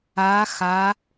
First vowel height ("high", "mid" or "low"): low